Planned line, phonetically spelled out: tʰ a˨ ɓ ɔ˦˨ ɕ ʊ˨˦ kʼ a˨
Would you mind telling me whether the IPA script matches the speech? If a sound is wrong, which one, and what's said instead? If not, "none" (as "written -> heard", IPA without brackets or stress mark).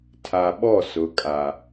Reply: ɕ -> s